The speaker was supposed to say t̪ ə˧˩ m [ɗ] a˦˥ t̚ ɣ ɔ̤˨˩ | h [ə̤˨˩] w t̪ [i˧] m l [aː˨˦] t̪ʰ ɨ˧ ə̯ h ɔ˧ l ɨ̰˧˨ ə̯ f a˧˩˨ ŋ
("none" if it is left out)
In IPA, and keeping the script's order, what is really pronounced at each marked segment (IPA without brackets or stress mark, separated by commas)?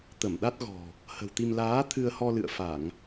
ɗ, ə̤˨˩, i˧, aː˨˦